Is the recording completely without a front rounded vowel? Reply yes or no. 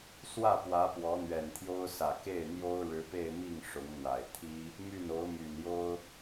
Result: no